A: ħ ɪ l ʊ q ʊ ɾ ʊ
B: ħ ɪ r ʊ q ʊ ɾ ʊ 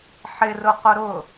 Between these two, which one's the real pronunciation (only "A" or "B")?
B